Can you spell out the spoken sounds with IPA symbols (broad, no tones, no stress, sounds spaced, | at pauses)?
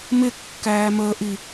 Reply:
m ɪ kː æː m əː ʔ i